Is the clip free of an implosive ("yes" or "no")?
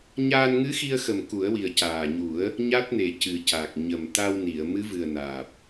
yes